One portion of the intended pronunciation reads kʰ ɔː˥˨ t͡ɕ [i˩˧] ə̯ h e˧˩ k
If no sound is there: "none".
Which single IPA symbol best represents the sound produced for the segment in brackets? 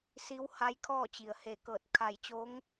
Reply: i˩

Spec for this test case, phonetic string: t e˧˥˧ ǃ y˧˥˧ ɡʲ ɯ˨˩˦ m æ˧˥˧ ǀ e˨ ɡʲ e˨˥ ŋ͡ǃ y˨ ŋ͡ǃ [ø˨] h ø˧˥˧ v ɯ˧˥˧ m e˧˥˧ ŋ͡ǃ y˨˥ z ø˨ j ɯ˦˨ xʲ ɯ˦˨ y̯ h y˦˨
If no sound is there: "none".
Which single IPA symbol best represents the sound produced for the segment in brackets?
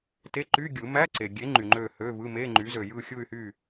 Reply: ø˦˨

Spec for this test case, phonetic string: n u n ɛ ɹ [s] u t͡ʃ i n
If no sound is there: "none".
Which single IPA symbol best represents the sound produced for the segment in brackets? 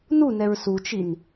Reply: s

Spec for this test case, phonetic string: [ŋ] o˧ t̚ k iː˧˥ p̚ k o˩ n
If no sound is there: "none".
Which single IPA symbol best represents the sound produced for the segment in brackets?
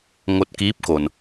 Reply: ŋ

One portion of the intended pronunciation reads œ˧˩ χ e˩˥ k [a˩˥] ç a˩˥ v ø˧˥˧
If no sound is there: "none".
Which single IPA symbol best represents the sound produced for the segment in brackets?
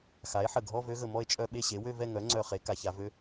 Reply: a˩˥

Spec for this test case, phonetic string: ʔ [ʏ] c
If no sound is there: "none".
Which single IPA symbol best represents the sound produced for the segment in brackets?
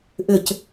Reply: ʏ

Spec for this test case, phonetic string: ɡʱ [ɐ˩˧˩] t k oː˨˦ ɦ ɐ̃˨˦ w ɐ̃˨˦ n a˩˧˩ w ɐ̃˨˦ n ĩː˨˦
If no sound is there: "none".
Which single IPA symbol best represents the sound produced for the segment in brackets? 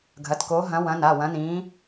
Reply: ɐ˩˧˩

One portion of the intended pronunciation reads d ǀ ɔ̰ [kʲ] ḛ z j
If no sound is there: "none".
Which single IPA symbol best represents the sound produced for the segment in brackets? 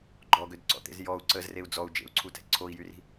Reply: t̪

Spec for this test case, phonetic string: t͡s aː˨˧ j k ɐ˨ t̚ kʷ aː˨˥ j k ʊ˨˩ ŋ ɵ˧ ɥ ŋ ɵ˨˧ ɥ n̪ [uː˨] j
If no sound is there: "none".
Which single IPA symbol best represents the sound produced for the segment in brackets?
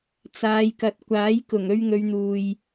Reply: uː˨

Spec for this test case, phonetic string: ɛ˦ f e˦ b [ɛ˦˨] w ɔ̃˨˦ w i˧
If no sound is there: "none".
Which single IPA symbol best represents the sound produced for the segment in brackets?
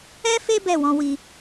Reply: ɛ˦˨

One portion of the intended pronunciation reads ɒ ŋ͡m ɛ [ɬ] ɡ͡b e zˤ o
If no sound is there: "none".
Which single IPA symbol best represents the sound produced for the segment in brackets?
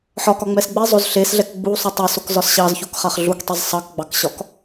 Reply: s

